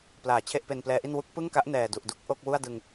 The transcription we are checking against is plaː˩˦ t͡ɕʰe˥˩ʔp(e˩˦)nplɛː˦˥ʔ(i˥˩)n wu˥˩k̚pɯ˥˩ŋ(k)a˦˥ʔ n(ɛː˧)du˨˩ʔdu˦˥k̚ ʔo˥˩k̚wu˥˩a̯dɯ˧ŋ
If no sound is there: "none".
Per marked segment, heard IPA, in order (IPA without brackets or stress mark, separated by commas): e˧, i˥˩, k, ɛː˨˩